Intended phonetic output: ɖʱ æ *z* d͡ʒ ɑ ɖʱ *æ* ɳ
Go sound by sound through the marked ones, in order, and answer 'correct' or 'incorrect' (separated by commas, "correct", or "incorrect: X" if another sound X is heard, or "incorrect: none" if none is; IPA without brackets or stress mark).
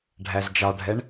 correct, incorrect: ɛ